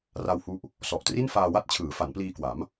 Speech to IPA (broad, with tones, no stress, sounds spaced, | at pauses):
r a˧ w h u˦˥ ʔ | s ɔ˨˩ ʔ t r i˥˩ n f aː˧ w a˥˩ t̚ t͡ɕʰ ɯː˩˦ f a˩˦ n p l iː˧ k w a˩˦ m